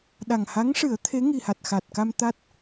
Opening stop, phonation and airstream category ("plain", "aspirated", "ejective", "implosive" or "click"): implosive